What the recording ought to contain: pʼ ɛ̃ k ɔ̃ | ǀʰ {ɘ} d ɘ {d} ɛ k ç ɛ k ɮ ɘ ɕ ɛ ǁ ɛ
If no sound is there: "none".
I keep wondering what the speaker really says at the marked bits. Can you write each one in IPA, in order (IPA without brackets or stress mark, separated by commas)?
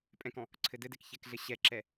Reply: ɘ, d